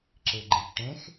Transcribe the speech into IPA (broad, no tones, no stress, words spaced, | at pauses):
ǁɪɡ͡ǃɪʎ ʈẽx